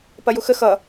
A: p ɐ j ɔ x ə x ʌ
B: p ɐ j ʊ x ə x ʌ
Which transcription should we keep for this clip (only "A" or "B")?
B